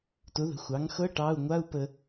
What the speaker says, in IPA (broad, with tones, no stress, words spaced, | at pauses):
tʊ˩˥ðə̤˩˥ xʷɑ˩˥ŋxɤ˧˥˧ ʈɑ˧˥˧u̯ ŋʷa˧˥˧u̯ pə˨